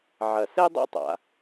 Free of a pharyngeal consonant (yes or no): no